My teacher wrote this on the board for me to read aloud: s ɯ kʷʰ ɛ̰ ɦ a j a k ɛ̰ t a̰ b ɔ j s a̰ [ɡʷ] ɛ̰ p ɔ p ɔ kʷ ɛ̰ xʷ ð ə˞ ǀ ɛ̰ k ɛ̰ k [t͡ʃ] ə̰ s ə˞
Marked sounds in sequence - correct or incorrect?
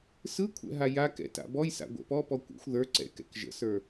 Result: correct, incorrect: ʒ

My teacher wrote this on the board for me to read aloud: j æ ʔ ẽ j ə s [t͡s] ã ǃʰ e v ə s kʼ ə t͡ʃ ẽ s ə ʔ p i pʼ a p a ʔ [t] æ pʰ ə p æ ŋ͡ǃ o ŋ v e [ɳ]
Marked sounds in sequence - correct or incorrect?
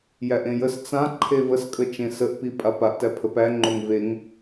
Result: correct, correct, incorrect: ŋ

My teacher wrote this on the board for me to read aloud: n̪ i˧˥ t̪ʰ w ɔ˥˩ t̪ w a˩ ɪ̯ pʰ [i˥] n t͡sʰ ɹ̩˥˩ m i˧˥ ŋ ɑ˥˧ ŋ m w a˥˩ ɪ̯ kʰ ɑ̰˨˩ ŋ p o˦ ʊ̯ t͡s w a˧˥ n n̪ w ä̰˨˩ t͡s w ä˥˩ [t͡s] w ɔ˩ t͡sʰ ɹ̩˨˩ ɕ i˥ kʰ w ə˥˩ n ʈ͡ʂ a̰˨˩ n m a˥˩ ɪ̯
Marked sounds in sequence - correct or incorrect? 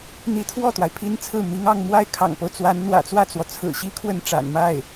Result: correct, correct

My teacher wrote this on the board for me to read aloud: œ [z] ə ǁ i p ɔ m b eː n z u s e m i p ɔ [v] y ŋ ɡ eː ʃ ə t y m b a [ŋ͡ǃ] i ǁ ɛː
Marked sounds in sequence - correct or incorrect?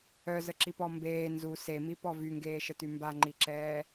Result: correct, correct, correct

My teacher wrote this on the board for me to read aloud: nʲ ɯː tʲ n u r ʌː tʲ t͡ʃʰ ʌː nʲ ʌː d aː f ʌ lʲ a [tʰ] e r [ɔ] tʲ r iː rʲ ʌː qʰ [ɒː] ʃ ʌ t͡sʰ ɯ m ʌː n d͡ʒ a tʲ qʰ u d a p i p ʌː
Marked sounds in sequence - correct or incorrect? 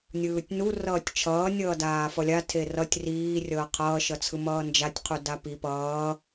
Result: correct, incorrect: ʌ, incorrect: ʌː

